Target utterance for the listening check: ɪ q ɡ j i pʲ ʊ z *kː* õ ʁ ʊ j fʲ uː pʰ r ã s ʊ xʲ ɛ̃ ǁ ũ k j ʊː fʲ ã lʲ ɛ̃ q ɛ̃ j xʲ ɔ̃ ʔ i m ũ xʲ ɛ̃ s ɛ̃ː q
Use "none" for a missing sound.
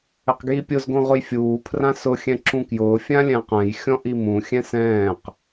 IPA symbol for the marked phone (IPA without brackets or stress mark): ɡ